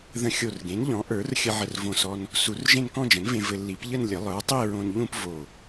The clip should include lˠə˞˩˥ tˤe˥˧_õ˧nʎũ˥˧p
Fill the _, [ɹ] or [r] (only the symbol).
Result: ɹ